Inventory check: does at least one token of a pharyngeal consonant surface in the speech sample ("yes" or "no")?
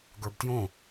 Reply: no